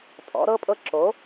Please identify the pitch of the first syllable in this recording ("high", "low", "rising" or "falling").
rising